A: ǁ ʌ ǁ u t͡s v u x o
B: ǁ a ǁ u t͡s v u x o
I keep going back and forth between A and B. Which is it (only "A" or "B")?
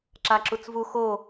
B